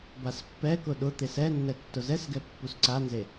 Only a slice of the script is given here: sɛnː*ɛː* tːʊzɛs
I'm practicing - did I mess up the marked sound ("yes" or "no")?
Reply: yes